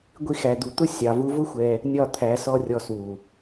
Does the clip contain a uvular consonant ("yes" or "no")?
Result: no